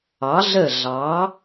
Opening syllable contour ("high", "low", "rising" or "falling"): rising